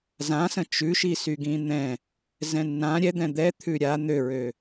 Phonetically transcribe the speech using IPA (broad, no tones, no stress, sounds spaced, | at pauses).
z ã s ə̃ t͡ʃ ʉ ʃ i s y ɡ ĩ n̪ ɛ̃ | z ɛ̃ nː ã ɾʲ ɛ d̪ ɛ̃ d̪ ɛ t̪ʰ ʉ ɾʲ a n̪ ø ɹ ø